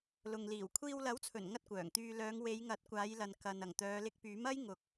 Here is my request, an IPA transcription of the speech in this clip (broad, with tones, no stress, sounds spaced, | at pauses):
l ʊ˨ ŋ l iː˨˩ w kʷʰ iː˧ w l ɐ˨˥ w t͡sʰ ɵ˨˩ n ŋ ɐ˥ t̚ kʷ œː˨˩ ŋ t̪ yː˧ l œː˨˧ ŋ w e˨˧ j ŋ ɐ˨˥ t̚ kʷ aː˨˧ j l ɐ˨ n k ɐ˨ n ɐ˨˩ ŋ t̪ œː˨˧ l ɪ˧ k̚ p yː˨˥ m ɐ˥ j ŋ ʊ˨˥ k̚